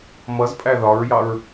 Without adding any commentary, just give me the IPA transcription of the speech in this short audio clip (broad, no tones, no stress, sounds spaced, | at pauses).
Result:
m ʌ z pʼ æ ð ɒ ɹ j ɑ ɹ